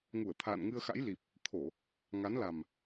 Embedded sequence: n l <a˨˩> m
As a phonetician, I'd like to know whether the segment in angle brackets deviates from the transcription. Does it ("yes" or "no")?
no